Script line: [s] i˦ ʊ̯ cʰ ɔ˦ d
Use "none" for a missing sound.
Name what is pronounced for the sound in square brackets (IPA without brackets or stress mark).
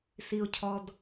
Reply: s